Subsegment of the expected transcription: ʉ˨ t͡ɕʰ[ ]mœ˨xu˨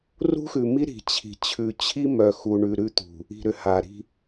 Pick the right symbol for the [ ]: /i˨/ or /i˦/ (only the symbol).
i˦